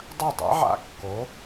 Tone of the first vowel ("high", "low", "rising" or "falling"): falling